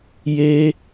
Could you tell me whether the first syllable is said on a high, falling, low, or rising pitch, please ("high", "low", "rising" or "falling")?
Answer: high